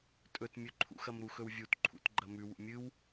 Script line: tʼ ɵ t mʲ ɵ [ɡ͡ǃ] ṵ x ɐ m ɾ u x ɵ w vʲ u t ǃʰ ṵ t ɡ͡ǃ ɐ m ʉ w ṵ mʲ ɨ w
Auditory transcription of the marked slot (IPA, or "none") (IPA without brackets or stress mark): ǃʰ